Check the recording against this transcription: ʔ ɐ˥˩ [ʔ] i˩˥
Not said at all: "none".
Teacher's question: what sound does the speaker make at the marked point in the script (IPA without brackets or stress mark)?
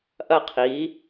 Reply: qʰ